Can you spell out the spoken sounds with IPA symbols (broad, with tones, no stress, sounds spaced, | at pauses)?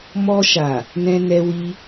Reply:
m ɔ˧ ʃ a˨ | n ɛ̃˧ n ɛ˧ w i˧